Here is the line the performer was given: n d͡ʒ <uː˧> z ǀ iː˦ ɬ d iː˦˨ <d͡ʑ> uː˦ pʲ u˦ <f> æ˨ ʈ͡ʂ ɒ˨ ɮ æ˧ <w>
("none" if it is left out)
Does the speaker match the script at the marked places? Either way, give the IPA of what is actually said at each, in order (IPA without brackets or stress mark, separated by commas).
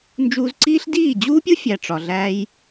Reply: uː˧, d͡ʑ, fʲ, j